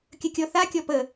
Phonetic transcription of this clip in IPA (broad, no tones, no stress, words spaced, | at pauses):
kʲəkʲɔ θakʲɔ pə